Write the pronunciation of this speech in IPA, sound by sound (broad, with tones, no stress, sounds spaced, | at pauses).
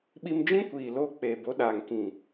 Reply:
ɓ i˧ m d͡ʒ ĩ˦ kʷ iː˨ l oː˧ k͡p eː˨ b o˨˦ ɗ aː˨ ŋ k ĩ˨